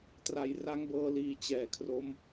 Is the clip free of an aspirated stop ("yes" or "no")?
no